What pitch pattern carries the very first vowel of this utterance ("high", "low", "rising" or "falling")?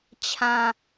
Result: low